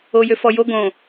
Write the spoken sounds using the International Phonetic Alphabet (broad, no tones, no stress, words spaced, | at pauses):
ojøfɔjo ɡõ